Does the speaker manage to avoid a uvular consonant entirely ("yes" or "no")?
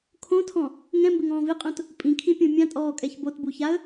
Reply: no